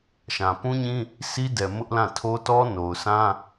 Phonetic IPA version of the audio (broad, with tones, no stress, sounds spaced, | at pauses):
ʃ ã˨ p ũ˦ ɲ ĩ˦ | sʰ i˦ d ɛ˨ m ʊ˦ ʔ l ã˦˨ tʰ o˦ t ɔ˦ n o˨ ʊ̯ sʰ ã˦